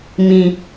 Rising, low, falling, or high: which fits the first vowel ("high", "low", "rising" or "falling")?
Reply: low